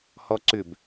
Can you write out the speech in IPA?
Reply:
hɔǀʏb

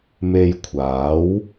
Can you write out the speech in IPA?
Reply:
me˧jkʷʰaː˨˥w

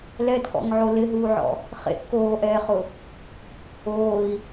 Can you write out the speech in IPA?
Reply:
lɛdkɔ̰ŋʕo lɪɦuːʕɔ̰ | χḛʔ koːʔɛːχʊ | oːi̯

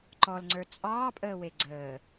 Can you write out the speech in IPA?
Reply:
ǃɔlŋ͡ǀə˞ t͡sʼɑːpʼəːwe ɡ͡ǀəː

